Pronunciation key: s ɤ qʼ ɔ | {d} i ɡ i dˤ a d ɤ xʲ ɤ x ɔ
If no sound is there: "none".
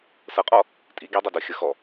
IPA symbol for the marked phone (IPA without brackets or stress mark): tʼ